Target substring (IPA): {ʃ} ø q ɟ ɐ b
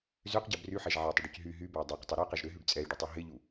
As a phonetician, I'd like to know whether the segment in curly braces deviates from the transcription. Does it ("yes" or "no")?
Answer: yes